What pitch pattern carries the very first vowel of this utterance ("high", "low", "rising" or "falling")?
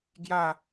falling